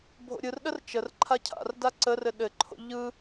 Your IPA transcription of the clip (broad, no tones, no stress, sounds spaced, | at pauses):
bʱ o̰ ɾʲ ɯ r ɗ ə r t͡ʃ ə r ǃʰ a cʰ a̰ r d a ǀ ə r ɘ ɗ ɘ ǃʰ o̰ ʎ ɯ